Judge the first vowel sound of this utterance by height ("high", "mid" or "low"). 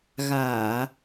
low